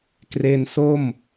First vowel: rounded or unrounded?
unrounded